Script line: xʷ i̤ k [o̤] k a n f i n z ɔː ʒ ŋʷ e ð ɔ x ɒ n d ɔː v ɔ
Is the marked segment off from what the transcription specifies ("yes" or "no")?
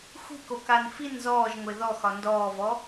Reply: yes